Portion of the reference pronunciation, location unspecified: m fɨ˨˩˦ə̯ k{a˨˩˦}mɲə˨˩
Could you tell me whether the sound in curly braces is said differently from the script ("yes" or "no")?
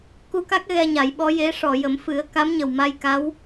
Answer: yes